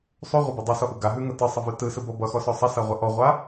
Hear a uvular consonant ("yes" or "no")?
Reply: yes